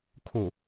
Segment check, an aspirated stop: present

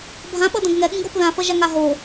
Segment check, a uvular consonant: absent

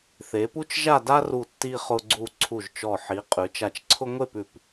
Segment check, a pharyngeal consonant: present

